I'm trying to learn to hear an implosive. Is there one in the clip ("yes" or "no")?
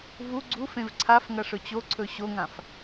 no